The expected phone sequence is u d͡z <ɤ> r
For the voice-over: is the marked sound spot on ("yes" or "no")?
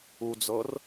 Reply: yes